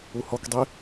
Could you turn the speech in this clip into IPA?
uhɔkdˤi

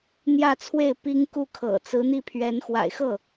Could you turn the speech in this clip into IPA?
n̪jä˥˧t͡sʰwe˥˩ɪ̯ pi˥ŋku˥˩kʰɤ̰˨˩ t͡sɹ̩˧˥n̪i˥˩pʰɥɛ˧˥n xwa̰˨˩ɪ̯xɤ˥˩

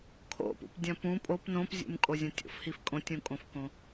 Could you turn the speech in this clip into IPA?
kʰo̰pṵpdʲɐ̃ pũ pʼop nõpzʲṵmkʼo zʲõtʲo̰fhif kʼõtʲũkʼõfkõ

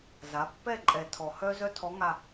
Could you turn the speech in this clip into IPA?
za˩˥ pːɛ˦˨ ǃʼɛ˨˩tʰɔ˨˩ hœ˥ zœ˥tʰɔ˧˥ŋa˦˨

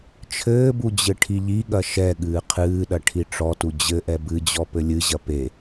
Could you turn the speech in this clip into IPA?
t͡ʃʰɘːbu d͡ʑɘʈʰiʎiɠɐ ʃɛ ɠɨːqʰɨːɗɐ ʈʰiʈ͡ʂɔtu d͡ʑɘʔɛ bɨd͡ʑɔ pɘlʲɨʑɐ pe

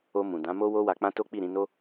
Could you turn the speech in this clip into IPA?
o˧ mũ˨ dã˨˦mo˦ wo˦wa˧k͡pã˦to˦ k͡pi˦˨ɾĩ˧no˦

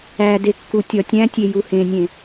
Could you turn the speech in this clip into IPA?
æde kːutʲɒtʲæ̃tʲe juhẽnʲẽ

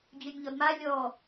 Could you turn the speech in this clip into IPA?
d͡ʑønʲʎɔdma lʲɔ

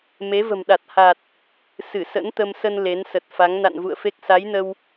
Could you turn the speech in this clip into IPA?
me˨˦və̤˨˩mɗa˨˩t̚ ha˨˩t̚ | sɨ˧˩sə̰˧˥nt̪ə˧msə˧n le˨˦nsə˨˩t̚fa˨˦ŋ na̰˧˨nvṵ˧˨ə̯fe˦˥k̚ sa˨˦jnə˧w

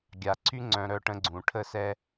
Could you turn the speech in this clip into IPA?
ɡʲa˨ǀʰy˦ ŋ͡ǀœ̃˦ɾœ˦ʈə̃˦ɡ͡ǀũ˨ ʈʰə˦sɛ˦

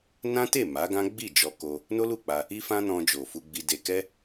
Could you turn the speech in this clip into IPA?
nã˦te˦˨ ma˨˦ɡã˦ ɡ͡bi˦˨d͡ʒɔ˧ ko˧ | no˦lu˦˨k͡pa˧ | i˦fã˦nɔ̃˧ d͡ʒo˨fu˧ɡ͡bi˧ de˧ kɛ˦

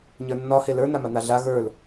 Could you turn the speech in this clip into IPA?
ɲə˞nːɒ helə˞ naman̪aɮa ɣə˞l

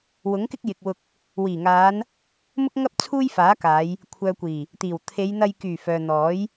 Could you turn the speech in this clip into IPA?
wʊ˨˥ŋkɪ˥k̚jɪ˨k̚wʊ˧k̚ | wiː˨˩ŋaː˨˧n | mʊ˥k̚ŋɐ˥p̚ t͡sʰuː˥jfaː˨˥kaː˨˧j | kʷʰœː˨kʷiː˨˩ | t̪iː˨˩wt̪ʰe˨˧j n̪ɐ˧j kyː˨˩ fœː˨n̪ɔː˨˥j

